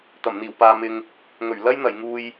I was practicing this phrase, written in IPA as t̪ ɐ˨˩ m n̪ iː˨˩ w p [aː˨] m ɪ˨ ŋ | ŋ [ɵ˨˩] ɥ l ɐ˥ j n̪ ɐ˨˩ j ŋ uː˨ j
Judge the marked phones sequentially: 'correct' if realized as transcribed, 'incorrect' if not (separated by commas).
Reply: correct, correct